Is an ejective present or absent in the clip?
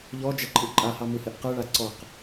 present